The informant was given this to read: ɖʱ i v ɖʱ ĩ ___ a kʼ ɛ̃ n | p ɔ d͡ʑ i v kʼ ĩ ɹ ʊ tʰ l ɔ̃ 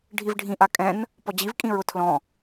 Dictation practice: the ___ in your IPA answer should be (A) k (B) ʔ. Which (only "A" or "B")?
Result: B